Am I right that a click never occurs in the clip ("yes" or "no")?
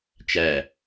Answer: yes